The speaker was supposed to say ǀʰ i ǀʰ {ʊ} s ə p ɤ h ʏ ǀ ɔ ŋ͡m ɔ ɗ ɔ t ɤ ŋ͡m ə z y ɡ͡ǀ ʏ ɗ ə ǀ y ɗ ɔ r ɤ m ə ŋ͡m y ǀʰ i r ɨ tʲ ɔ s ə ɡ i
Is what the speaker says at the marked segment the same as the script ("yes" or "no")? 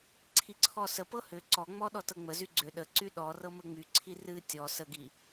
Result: no